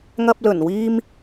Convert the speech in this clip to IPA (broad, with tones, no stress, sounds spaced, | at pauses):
ŋ ɐ˧ p̚ l ɵ˨˩ n w iː˥ m